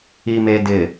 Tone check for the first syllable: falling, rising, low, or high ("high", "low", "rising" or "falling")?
low